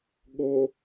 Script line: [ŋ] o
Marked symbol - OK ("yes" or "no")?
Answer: no